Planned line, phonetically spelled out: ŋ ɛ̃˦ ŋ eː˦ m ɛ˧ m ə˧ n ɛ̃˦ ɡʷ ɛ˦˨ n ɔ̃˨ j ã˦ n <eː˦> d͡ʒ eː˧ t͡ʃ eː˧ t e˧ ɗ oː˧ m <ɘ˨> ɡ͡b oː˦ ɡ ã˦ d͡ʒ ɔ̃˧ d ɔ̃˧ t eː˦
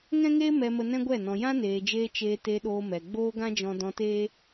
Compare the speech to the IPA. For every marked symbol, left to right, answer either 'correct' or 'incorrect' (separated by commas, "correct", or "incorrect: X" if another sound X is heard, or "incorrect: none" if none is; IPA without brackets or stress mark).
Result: incorrect: eː˨, incorrect: ɛ˨